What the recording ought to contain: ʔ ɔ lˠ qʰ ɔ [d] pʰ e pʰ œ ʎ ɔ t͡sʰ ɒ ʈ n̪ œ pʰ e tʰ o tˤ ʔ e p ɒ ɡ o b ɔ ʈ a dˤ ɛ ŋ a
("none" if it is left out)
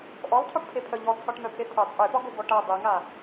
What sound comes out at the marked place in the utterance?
ʈ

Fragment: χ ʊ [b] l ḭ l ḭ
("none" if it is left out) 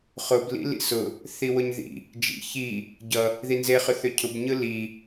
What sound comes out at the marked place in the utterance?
b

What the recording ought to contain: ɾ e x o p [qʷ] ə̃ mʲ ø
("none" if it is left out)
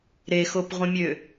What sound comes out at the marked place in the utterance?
ʁʷ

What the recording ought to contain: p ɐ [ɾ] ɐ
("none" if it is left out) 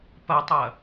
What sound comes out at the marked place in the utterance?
tˤ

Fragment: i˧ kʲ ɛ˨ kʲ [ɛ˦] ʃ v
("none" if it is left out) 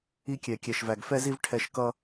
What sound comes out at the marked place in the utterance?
ɛ˨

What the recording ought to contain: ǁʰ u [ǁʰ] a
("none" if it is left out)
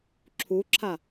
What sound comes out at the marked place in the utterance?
ǁʰ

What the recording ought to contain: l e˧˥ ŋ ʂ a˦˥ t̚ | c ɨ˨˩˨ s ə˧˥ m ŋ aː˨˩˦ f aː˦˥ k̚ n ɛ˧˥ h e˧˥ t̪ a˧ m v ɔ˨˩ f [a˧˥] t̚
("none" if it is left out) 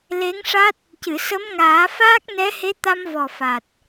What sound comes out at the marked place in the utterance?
a˨˩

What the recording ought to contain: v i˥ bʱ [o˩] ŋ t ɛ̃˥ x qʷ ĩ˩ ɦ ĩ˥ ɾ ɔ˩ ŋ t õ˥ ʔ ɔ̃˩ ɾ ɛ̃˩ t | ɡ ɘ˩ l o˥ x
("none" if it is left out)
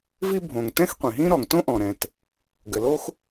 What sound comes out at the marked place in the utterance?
õ˩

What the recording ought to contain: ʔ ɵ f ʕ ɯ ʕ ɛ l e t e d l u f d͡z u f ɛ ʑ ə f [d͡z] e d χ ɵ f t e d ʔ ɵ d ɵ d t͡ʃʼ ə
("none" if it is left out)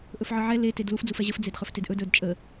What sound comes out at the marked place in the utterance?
d͡z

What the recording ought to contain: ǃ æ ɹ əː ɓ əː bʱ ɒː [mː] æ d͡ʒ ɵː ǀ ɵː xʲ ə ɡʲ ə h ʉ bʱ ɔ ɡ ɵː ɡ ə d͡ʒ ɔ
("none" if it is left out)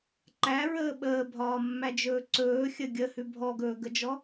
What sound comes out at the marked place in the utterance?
mː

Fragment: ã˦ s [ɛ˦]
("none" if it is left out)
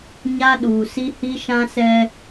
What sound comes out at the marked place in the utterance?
ɛ˦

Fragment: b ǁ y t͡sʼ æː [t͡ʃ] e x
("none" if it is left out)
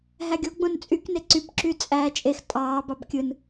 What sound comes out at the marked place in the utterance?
t͡ʃʼ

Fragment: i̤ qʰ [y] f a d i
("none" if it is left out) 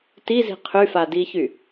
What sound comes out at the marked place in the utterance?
y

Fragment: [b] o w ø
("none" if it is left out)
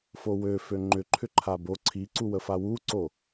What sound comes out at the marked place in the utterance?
f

